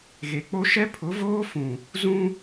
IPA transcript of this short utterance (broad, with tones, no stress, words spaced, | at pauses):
ɣe˨k͡po˦ ʃɛ˦pʰʊ˨˦voː˦fũ˨ | zũ˦